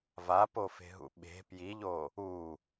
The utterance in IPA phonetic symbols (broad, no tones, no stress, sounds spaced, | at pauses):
v a p o f e̤ ɦ ṵ ɓ e̤ p j i ʎ o | u